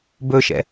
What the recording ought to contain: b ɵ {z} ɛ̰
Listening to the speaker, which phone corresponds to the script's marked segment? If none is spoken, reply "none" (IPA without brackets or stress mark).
ʃ